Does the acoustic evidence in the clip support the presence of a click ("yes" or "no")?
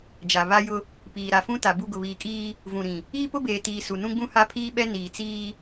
no